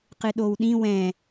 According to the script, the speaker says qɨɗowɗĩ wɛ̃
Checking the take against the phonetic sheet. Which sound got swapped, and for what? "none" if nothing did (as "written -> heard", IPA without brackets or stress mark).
none